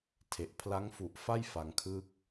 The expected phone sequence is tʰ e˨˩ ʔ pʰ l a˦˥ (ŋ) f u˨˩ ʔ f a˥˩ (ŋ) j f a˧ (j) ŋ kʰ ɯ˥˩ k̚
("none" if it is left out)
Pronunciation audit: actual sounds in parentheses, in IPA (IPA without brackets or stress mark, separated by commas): ŋ, none, none